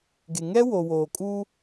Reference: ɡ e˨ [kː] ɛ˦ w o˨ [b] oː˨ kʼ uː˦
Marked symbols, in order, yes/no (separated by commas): no, no